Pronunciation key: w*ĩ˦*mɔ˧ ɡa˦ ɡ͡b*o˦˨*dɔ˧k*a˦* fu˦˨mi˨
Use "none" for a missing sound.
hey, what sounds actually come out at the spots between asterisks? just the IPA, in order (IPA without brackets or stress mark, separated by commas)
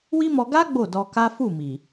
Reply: i˦, o˦˨, a˦